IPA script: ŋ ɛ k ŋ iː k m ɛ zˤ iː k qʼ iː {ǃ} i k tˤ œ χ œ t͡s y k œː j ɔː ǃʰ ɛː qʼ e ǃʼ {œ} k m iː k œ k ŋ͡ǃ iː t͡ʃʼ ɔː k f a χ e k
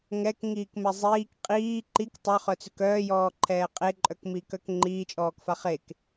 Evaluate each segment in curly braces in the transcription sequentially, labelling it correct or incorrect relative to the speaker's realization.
correct, correct

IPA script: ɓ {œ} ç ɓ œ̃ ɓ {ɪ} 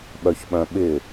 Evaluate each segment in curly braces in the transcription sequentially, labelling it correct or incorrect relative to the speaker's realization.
correct, correct

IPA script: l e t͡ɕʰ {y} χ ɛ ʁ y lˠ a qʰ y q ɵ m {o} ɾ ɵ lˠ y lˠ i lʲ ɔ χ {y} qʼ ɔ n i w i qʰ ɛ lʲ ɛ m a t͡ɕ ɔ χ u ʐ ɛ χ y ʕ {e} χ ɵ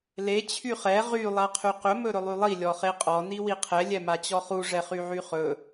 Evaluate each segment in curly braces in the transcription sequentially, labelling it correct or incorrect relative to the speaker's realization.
correct, incorrect, incorrect, incorrect

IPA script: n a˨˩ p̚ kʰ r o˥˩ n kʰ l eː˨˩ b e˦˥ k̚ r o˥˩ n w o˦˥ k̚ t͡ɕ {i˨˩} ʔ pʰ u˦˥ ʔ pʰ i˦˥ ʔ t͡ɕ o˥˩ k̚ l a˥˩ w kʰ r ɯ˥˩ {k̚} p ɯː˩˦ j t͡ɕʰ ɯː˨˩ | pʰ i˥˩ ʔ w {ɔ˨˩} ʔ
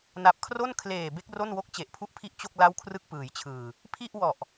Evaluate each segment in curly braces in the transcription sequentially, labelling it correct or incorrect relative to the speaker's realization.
incorrect, correct, correct

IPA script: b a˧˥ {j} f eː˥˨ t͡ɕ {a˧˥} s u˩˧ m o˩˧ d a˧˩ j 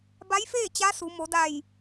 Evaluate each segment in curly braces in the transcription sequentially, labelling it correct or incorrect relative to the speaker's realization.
correct, correct

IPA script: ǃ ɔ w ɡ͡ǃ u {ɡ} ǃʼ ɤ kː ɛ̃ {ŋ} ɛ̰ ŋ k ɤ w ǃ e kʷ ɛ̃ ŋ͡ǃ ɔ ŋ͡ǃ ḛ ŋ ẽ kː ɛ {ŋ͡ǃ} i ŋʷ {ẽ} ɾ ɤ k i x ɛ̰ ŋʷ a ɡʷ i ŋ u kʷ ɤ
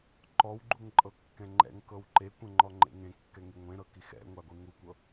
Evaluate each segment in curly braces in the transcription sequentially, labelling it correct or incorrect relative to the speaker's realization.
incorrect, incorrect, incorrect, correct

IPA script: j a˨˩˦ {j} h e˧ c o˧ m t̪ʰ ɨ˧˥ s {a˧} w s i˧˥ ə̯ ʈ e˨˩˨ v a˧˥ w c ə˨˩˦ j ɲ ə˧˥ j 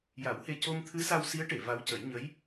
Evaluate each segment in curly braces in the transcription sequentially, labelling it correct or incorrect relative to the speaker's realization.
incorrect, correct

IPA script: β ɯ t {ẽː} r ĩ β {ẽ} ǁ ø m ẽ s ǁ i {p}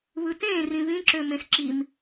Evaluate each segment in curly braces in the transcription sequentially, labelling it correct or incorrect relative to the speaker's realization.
correct, incorrect, incorrect

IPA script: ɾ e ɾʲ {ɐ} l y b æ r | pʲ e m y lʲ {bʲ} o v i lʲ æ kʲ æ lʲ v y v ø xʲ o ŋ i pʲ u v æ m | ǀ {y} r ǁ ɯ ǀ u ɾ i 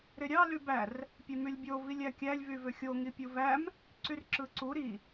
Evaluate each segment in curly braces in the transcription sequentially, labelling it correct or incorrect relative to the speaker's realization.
incorrect, correct, correct

